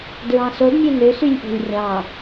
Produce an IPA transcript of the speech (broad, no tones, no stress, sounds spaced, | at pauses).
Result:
d ɹ ɑ̃ s o d mʲ ø n ø s y lʲ ʔ o̤ lʲ rʲ ɑ̃